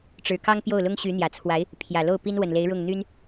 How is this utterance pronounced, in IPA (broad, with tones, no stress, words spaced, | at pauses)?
ʈ͡ʂɻ̩˧˥ kɑ˥ŋpjo˥˩ʊ̯lʊ˥ŋ ɕy˧˥n̪jä˨˩t͡sʰwa˧˥ɪ̯ | pʰjä˨˩lo˥˩ʊ̯pi˥n wə˨˩nle˧˥ɪ̯ɻʊ˥˩ŋ n̪y˥n